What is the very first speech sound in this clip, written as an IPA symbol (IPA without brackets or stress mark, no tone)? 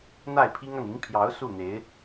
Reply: n̪